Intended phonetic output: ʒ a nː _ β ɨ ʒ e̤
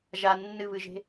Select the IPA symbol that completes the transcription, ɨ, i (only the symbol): ɨ